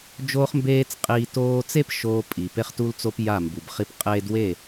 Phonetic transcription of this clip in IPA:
d͡ʒ oː˦ χ m b eː˦ t͡s qʼ iː˧ t oː˧ t͡s e˦ p ʃ oː˧ pʼ i˨ p e˧ χ t u˧ l t͡s o˧ p j a˦˨ m b u˨ b χ i˦ p qʼ eː˧ d w e˦˨

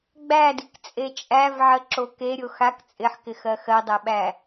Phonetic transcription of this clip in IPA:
ɡ͡b æ d i k t͡sʼ e t͡ʃʼ æ v ʕ ə ǁ o k e ɾʲ o x a k t͡sʼ ɪ ħ k ɪ x ɜ x ɜ dˤ æ ɓ æ

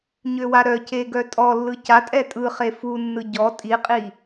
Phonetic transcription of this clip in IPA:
ɲ ø w a ɾ œ c e ɡ œ tʼ ɔ lː ɯ c a tʼ ɛ tʼ ɯ χ e f u nː ɯ ɟ ɔ tʼ i qʼ i

